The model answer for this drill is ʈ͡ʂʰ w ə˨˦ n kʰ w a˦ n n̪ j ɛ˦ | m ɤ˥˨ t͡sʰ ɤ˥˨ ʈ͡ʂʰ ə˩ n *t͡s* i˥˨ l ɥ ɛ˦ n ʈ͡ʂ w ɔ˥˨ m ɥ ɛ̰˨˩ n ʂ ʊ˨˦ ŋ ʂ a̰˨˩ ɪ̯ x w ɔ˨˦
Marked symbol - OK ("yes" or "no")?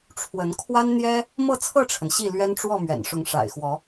no